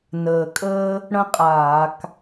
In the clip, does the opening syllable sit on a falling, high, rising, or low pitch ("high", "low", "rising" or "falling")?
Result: low